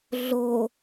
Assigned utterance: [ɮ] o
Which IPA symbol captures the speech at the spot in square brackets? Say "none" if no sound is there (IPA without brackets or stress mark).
ɮ